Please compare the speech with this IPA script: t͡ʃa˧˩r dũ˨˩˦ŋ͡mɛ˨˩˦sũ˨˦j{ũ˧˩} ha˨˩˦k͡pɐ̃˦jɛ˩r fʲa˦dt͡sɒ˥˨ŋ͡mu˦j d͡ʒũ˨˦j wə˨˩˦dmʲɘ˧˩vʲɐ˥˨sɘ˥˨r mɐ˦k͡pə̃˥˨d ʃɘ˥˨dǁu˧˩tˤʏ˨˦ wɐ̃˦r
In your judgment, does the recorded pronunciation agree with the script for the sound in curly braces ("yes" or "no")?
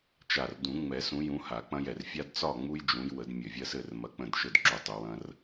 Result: no